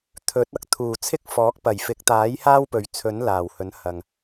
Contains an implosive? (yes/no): no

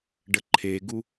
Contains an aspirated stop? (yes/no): yes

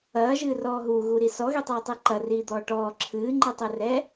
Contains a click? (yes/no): yes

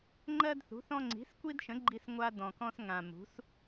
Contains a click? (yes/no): yes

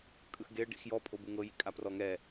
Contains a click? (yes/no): no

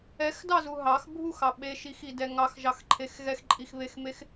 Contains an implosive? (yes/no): yes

